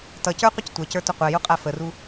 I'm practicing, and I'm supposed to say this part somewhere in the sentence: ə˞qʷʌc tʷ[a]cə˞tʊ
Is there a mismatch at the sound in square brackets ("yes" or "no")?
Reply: yes